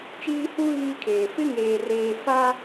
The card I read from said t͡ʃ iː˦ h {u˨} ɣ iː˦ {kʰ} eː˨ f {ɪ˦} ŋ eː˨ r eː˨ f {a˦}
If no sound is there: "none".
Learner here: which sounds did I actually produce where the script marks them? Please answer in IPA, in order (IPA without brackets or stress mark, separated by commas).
u˦, kʰ, ɪ˦, a˦